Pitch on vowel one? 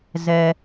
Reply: low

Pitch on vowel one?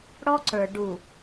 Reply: high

